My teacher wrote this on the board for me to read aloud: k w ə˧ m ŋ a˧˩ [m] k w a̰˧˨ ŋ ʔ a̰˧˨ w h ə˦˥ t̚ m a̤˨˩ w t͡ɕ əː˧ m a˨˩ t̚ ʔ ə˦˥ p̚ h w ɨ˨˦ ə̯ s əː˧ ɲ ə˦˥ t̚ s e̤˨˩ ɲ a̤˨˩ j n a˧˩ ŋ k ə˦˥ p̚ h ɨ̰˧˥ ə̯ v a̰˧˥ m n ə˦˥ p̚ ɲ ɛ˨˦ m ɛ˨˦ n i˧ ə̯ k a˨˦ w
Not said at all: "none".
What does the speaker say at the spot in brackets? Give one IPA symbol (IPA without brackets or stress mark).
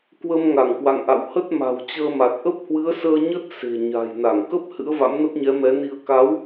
ŋ